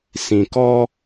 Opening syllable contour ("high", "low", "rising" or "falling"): low